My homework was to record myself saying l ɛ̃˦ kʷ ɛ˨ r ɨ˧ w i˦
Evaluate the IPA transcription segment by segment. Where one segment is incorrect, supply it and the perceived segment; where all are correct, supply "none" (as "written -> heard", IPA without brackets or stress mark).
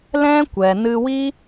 r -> n